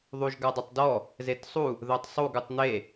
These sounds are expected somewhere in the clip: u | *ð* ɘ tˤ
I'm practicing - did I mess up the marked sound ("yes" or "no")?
no